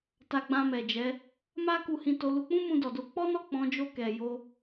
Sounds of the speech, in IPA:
t a˧ ɡ͡b ã˧ m ɛ˨ d͡ʒ ɛ˨˦ | m a˦ k u˧ h ĩ˧ t o˧ l u˧ k͡p ũ˦ m ũ˧ d ɔ˨ d o˧ k͡p ɔ˦ n ɔ˦˨ k͡p ɔ̃˨˦ d͡ʒ o˦˨ k ɛ˨ j o˧

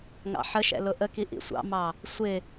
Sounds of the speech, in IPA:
ŋ ɑ̰ ħ ə ʃ ɛ̰ l ʊ ʔ ə k i ʔ ḭ sʷ ɑ̰ m ɑ | sʷ ɪ

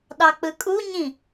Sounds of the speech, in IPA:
ɗ ɑ k͡p ɯ kʼ u ɲ ĩ

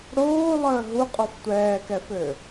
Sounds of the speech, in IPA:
ɽ oː lˠ əː ɦ u qʼ ɔ f tʷ ɛː k ɛ f ø

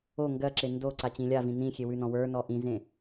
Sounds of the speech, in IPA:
o ŋ ɡ ɜ ǁ e n d o ǀ a t͡ɕ ĩ lʲ a v ĩ n ĩ xʲ e w ʉ n ɔ̃ w ə˞ n ɔ ʔ ĩ z ẽ

